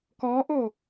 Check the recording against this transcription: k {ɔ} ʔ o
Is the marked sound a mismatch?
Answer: no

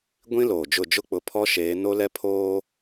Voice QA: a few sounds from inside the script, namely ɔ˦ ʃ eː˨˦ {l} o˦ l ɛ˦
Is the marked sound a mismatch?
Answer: yes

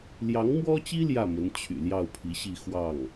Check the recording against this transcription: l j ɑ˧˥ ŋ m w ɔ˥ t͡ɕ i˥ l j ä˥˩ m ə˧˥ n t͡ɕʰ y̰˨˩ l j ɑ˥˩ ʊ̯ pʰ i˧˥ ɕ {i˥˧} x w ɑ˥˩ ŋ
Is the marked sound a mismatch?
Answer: no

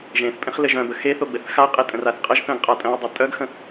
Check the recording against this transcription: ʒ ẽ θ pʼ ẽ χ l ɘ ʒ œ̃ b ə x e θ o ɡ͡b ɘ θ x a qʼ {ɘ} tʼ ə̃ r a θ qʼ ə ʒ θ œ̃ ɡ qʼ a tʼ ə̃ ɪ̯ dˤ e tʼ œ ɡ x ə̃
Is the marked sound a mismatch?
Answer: yes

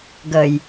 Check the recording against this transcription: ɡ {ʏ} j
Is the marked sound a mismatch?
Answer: yes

